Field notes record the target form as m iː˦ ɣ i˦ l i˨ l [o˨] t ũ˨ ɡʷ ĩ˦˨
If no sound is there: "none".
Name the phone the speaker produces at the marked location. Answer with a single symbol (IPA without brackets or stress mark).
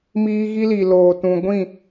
oː˨